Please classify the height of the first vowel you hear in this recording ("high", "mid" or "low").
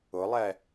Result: high